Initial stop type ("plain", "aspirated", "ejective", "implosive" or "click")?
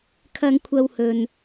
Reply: aspirated